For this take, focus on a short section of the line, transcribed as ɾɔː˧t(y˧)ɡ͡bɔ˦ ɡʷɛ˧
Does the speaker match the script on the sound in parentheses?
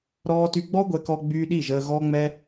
yes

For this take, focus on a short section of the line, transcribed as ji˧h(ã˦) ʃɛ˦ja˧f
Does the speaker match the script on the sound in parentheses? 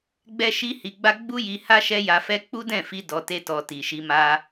no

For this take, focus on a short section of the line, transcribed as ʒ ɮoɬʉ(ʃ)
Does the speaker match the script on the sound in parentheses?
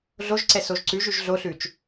no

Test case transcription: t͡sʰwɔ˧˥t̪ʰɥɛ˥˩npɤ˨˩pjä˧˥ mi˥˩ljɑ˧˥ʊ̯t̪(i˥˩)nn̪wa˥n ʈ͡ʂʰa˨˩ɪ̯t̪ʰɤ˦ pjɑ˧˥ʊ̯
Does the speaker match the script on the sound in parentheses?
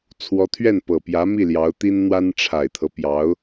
no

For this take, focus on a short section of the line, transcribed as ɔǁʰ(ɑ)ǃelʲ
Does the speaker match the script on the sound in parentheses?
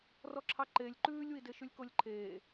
yes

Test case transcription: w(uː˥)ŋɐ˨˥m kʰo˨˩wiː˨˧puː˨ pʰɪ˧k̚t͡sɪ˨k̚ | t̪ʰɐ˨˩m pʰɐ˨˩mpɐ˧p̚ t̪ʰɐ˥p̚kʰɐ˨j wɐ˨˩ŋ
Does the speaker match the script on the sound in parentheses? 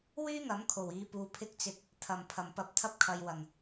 no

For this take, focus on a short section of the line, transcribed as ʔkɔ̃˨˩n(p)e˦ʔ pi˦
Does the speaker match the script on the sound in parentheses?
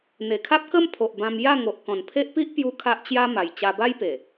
no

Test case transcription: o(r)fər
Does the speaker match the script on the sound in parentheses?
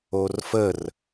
yes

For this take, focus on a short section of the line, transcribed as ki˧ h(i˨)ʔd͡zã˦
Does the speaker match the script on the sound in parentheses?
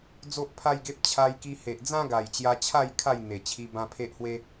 no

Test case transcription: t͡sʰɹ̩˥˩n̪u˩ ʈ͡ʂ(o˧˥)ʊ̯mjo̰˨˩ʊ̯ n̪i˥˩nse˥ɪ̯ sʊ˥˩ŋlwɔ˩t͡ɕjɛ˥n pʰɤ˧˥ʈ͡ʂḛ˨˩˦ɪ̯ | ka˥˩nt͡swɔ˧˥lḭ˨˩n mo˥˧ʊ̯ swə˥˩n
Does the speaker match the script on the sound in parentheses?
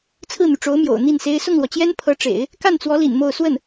yes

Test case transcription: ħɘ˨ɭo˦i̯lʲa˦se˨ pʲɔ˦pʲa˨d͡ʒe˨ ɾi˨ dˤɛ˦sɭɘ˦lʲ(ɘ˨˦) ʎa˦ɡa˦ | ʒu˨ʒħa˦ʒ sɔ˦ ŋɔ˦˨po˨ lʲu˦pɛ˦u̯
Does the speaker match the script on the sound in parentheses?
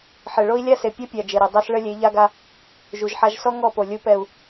no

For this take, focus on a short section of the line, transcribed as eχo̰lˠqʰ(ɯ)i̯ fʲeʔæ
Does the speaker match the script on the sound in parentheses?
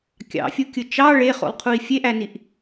no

